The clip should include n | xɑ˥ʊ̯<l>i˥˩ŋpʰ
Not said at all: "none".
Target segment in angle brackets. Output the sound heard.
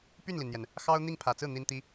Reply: n̪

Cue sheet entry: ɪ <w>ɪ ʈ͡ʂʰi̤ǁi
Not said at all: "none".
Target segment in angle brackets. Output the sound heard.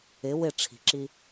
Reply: w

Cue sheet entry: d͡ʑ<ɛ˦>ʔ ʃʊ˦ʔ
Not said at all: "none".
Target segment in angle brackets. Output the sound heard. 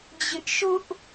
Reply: ɪ˦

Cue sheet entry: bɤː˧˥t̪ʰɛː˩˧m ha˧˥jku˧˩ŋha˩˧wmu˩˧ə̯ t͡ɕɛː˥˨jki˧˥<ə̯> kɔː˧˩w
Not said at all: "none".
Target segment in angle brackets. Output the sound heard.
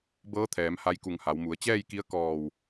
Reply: ə̯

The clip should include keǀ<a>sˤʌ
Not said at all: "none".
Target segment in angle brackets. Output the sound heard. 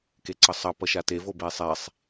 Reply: ʌ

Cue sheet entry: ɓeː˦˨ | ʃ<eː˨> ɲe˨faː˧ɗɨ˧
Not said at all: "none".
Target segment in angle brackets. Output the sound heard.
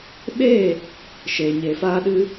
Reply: eː˨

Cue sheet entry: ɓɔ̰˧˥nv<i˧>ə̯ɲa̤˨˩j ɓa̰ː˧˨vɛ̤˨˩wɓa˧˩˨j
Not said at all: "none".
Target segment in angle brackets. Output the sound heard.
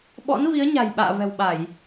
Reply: i˨˦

